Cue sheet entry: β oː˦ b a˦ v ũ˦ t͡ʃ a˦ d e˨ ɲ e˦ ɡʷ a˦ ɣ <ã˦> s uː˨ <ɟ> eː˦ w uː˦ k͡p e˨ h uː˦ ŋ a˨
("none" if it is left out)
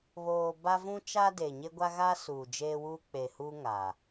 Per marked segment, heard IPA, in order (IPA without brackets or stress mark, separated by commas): a˦, d͡ʒ